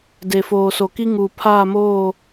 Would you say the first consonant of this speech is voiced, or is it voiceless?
voiced